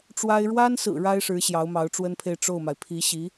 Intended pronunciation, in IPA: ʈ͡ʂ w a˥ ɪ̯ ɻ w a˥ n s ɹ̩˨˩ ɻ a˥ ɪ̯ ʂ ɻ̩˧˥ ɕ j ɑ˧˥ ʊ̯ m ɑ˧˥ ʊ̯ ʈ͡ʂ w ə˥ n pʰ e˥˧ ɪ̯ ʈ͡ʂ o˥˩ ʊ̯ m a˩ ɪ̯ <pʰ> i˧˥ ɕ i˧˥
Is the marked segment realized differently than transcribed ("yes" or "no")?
no